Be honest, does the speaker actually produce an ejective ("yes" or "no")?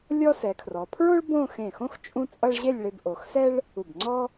yes